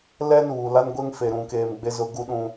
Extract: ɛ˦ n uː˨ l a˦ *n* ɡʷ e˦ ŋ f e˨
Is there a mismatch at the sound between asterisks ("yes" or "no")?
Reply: no